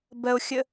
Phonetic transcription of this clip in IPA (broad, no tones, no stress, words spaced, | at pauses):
bɜo̯xʲə